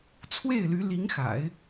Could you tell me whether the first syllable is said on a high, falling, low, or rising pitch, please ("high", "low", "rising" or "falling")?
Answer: falling